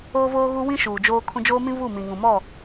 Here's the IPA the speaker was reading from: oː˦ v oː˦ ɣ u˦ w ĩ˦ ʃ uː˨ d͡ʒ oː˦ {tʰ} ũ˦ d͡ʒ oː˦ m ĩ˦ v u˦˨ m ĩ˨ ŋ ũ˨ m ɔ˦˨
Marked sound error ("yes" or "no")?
yes